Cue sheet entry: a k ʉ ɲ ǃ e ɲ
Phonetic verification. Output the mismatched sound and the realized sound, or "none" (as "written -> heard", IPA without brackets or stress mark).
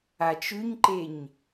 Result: k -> t͡ʃ